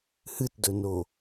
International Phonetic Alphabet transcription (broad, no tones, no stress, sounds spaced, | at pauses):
h ɨ t d ɵ n o